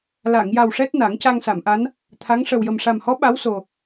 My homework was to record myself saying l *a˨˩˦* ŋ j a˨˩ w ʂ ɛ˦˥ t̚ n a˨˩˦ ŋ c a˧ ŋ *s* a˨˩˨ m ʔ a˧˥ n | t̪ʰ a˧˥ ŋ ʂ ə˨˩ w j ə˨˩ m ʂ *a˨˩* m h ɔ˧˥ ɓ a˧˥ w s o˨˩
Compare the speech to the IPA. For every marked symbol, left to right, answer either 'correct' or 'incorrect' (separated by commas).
incorrect, correct, correct